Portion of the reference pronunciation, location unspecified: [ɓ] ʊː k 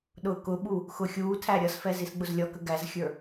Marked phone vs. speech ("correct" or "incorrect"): incorrect